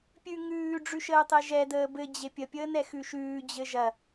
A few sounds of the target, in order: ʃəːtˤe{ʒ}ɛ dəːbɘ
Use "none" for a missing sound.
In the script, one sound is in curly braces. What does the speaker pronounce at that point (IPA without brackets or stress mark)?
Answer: ʒ